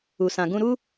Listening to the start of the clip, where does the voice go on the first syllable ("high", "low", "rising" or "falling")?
low